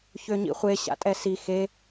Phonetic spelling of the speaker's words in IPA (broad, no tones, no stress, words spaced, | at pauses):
çøɲḭχʷe ɕa̰tʼɛsi xe